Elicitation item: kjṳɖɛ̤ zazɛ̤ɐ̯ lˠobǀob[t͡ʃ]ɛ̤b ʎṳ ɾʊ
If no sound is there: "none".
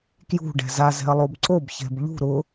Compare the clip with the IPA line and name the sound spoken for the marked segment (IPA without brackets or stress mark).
ç